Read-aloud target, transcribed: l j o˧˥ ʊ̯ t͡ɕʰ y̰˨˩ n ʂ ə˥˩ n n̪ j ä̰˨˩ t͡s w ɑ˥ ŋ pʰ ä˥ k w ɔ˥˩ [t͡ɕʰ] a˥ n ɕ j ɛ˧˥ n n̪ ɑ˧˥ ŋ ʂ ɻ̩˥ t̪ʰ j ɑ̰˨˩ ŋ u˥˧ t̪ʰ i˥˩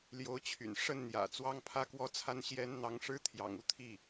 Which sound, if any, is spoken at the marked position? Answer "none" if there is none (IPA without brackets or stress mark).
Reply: t͡sʰ